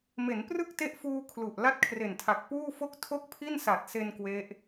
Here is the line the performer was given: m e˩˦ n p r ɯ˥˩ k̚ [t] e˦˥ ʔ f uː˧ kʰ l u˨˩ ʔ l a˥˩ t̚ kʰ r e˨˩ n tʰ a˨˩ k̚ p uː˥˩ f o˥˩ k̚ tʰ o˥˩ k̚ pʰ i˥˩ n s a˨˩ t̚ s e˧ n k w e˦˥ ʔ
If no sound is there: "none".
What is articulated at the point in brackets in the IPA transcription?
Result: t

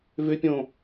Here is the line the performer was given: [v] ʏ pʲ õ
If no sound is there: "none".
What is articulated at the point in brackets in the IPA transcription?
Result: v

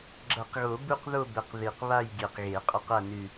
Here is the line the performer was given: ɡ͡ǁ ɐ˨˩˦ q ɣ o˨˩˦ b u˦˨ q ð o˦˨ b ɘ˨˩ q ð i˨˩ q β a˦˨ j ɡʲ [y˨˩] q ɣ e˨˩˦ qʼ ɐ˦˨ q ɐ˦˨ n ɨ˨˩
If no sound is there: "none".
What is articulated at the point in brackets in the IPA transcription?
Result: e˨˩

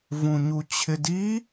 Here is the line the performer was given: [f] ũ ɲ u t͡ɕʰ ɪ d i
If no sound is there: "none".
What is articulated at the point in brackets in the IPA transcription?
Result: v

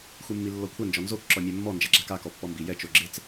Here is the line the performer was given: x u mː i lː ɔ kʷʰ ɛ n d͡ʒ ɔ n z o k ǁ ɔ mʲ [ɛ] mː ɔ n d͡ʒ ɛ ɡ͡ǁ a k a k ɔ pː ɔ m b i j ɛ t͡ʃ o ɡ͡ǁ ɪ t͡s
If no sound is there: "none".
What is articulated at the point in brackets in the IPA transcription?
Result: ɛ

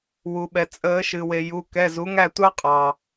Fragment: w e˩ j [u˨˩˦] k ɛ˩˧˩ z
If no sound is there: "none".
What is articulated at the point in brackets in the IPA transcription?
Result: u˩˧˩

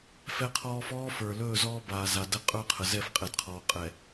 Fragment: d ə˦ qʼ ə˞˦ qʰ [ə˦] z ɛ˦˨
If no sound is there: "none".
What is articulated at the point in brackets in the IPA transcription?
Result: ə˨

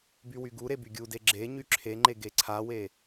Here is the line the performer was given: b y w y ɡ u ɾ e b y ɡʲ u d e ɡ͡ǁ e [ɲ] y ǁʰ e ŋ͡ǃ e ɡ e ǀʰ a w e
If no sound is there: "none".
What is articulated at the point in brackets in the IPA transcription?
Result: ɲ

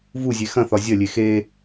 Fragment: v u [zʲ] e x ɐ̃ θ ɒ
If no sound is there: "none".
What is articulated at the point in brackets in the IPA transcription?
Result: zʲ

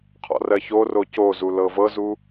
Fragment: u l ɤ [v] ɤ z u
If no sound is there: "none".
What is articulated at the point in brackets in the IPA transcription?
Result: v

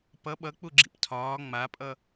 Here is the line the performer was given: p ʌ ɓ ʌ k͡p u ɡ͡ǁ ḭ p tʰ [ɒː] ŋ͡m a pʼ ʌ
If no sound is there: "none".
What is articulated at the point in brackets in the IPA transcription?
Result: ɒː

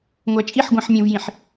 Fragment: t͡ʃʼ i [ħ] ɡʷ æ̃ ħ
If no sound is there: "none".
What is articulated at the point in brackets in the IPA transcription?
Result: ħ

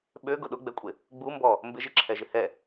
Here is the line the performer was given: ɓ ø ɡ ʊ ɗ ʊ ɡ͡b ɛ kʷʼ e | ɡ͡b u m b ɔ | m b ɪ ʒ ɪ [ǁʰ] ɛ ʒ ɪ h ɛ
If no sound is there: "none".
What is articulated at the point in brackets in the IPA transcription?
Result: ǁʰ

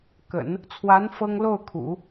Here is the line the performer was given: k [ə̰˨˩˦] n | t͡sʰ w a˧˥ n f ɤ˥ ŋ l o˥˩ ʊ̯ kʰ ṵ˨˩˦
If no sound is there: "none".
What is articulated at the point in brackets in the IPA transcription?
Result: ə̰˨˩˦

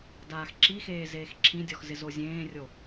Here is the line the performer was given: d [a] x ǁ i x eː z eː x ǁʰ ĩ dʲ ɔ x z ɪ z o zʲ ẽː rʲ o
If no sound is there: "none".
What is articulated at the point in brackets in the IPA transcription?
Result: aː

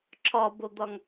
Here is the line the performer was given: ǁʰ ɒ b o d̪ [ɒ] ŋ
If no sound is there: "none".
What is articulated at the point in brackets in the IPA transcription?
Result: ɒ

